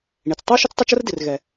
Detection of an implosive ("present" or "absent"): absent